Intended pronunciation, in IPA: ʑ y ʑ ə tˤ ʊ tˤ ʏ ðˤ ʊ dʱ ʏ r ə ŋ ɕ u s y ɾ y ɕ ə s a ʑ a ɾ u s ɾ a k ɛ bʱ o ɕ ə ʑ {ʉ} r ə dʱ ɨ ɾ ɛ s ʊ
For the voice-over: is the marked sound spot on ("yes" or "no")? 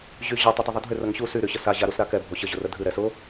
no